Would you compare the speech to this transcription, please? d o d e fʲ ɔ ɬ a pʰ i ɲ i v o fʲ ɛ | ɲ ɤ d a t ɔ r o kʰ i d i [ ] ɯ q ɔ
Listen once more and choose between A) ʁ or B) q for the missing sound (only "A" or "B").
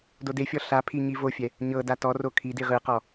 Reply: A